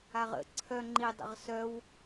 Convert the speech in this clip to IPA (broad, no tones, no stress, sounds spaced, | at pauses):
a ʁ ə̰ ǀʰ œ ŋ͡ǃ i dˤ ə̰ ʁ s œ w